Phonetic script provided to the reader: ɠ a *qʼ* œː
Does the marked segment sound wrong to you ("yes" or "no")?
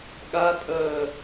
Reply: yes